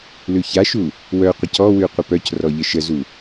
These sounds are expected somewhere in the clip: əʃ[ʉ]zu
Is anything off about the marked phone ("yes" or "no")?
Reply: yes